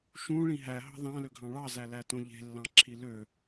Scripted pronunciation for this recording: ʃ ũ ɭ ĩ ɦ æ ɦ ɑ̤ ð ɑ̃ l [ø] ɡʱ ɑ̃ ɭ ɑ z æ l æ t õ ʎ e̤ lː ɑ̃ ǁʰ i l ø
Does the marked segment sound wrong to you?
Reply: no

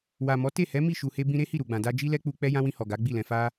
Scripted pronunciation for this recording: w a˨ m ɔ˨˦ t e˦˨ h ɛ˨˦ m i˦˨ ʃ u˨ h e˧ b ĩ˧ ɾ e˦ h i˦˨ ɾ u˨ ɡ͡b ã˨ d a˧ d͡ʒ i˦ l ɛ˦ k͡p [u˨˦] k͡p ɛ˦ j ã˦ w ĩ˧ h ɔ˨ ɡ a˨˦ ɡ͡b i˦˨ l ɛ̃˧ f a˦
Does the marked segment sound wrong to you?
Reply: yes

